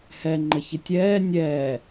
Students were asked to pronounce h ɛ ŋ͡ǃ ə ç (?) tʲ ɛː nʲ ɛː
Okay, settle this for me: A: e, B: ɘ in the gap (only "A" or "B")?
B